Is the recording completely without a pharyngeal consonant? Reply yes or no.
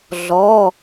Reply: yes